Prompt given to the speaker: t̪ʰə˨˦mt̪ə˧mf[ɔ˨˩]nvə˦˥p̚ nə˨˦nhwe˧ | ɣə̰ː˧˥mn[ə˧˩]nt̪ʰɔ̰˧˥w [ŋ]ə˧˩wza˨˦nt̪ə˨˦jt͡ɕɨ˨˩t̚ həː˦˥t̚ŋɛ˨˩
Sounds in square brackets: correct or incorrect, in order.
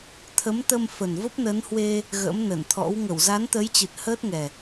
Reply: incorrect, correct, correct

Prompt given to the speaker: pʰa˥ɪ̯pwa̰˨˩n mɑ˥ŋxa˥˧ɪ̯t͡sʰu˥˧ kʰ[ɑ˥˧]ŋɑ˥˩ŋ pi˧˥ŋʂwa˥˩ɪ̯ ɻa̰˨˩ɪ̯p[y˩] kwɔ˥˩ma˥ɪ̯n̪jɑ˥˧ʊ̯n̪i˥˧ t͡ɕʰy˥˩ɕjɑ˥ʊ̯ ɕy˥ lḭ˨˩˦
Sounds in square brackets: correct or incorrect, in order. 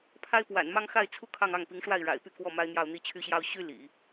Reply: correct, incorrect

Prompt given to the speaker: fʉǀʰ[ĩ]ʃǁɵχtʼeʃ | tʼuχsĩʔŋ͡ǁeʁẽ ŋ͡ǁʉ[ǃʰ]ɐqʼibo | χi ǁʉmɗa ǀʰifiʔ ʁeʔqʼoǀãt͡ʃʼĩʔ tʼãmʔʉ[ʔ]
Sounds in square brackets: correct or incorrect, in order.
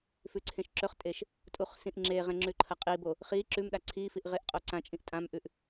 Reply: incorrect, correct, correct

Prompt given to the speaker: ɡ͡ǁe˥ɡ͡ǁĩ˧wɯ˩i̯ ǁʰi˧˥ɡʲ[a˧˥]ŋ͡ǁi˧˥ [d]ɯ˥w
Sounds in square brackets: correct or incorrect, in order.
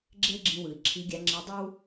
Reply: correct, incorrect

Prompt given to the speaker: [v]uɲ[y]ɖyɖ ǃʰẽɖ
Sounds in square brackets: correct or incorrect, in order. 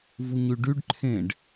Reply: correct, correct

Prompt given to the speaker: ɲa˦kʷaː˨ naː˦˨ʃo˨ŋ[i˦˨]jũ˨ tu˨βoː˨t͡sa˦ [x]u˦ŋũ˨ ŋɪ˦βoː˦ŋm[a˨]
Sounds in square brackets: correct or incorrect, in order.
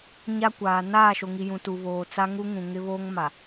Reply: incorrect, incorrect, correct

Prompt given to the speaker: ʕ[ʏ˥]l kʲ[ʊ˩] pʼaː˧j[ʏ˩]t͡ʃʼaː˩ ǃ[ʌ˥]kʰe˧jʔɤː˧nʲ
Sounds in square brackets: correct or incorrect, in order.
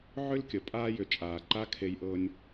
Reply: correct, incorrect, correct, incorrect

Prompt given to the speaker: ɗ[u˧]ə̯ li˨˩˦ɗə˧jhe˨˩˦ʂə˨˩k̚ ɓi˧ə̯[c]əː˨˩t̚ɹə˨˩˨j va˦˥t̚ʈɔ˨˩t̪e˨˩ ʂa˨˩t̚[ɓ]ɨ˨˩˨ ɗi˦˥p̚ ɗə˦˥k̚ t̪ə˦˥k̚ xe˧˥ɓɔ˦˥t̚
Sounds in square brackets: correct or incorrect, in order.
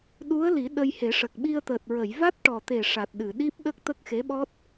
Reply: incorrect, incorrect, incorrect

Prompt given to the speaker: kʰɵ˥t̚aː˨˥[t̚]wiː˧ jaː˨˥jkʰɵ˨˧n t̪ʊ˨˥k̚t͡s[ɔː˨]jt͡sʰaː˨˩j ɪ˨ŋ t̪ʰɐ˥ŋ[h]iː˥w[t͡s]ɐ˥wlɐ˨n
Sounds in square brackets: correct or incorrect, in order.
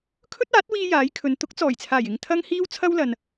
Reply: correct, incorrect, correct, incorrect

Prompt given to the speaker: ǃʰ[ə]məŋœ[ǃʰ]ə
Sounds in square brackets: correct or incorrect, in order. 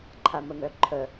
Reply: incorrect, correct

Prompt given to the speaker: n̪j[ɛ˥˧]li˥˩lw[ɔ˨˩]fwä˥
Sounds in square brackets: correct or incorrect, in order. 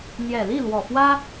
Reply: incorrect, correct

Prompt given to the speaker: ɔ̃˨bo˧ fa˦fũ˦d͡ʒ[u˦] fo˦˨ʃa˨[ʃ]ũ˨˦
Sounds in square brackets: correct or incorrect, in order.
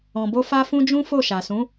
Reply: incorrect, incorrect

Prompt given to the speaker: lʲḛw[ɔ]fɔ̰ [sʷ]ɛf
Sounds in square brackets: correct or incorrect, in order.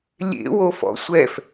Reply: incorrect, correct

